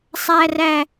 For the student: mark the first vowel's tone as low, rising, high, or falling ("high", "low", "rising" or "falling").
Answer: high